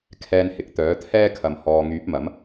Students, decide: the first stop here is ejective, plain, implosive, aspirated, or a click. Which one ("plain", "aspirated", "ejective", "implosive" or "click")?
aspirated